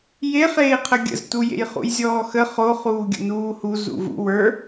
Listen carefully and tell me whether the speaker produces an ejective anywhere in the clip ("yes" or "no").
no